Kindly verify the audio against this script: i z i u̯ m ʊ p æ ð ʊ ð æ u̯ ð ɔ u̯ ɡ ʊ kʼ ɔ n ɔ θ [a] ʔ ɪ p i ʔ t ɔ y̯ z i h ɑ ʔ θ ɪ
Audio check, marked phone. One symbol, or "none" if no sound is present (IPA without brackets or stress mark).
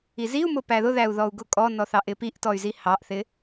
ɑ